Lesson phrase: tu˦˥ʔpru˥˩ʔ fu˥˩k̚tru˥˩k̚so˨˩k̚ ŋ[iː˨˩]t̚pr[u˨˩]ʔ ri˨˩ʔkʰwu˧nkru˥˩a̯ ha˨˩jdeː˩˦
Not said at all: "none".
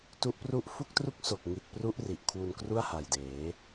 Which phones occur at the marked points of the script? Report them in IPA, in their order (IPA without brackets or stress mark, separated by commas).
i˨˩, u˦˥